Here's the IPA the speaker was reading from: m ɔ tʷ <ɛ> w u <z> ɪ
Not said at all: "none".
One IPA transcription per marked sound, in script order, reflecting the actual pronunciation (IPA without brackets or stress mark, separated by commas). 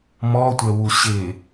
ɛ, ɕ